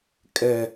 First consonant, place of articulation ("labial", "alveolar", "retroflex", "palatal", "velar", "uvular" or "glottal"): velar